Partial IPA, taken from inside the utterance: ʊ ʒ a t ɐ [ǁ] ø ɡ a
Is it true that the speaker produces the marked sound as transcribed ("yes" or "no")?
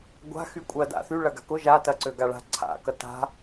no